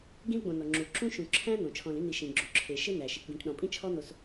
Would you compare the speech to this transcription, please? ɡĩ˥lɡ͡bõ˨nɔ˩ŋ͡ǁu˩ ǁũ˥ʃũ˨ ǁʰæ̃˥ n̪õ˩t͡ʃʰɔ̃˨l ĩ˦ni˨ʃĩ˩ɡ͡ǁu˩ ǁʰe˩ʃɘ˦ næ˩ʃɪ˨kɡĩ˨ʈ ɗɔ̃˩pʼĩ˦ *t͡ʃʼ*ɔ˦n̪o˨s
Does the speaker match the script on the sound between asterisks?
no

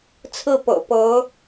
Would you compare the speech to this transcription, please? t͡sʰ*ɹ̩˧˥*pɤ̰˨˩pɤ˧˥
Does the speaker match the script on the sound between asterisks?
no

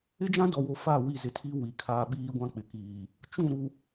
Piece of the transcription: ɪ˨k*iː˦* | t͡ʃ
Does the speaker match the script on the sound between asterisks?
no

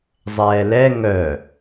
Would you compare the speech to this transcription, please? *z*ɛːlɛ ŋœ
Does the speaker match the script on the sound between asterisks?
no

